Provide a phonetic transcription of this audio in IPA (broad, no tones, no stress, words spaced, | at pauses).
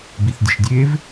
biθdʲə̤ʃdʲev